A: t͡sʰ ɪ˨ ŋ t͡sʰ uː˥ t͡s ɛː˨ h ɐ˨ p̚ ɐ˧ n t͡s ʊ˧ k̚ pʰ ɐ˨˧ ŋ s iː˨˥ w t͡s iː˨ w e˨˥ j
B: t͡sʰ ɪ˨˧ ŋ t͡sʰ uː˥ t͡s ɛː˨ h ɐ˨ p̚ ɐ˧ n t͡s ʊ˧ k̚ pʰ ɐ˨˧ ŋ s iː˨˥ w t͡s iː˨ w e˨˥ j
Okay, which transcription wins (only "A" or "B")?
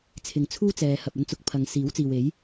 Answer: A